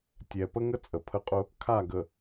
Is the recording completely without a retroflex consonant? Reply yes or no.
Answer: yes